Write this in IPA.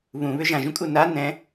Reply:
β ũ β ʏ ʒ ã ʒ ũ kʼ u n a n ɛ̃

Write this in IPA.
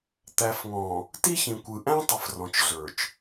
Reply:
t̪ æ˨ f ŋ ɔ̃˨ | t i˦ ç ĩ˨ kʷ ɯ˨ ʔ æ̃˦ tˤ ə˨ f r ɔ̃˨ t͡ʃ ɮ ə˞˨ t͡ʃ

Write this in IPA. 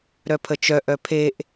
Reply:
ɾ œ pʰ ə t͡ʃ œ ʔ œ pʰ e ʔ

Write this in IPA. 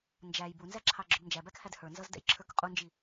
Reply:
n d͡ʒ æ j b u n z æ ǁʰ ɑ ɡ͡ǁ ʊ b n d͡ʒ æ b æ k h æ d h ə˞ n z ʌ z d ɛ̰ j ǁʰ ə˞ k qʼ u n d͡ʒ i

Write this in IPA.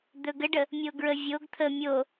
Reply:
d̪ ɵ ɡ ə ɖ ə | mʲ o ɡ ɹ ə vʲ o ɡ t̪ʰ ə mʲ o

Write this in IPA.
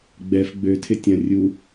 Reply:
ɡ͡b ɛ f ɡ͡b ø tʰ ɪ tʲ ɐ̃ rʲ u

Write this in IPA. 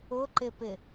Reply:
ʊ ǃ ɪ p ɪ

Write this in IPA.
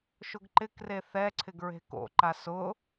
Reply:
ʃ ʊ ɡ ǃ ɪ k r e θ ɛ ǀʰ ɪ ɡ ɹ e̤ k o̰ ǃ a s ʊ

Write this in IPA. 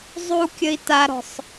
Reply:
zˤ u kʲ ə i̯ t a ɾ ɔ̤ sˤ

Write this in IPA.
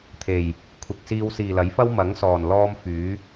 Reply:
t̪ʰ e˨˩ j | kʷʰ ɪ˨ k̚ s iː˧ w s iː˨ l ɐ˨˥ j f ɐ˥ w m ɐ˨˥ ŋ s ɔː˨˩ n l ɔː˧ m f yː˨˥

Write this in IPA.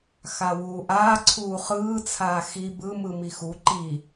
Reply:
x a w uː ʔ aː ǀʰ uː χ ɯː t͡sʰ aː x i b ɯ m ɯ m i x u ǃ i

